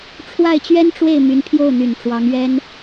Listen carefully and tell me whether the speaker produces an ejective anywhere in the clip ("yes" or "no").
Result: no